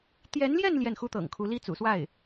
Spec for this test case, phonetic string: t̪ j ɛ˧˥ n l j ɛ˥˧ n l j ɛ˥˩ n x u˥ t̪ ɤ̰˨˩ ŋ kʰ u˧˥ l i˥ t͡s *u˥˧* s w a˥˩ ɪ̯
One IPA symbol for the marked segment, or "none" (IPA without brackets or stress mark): ṵ˨˩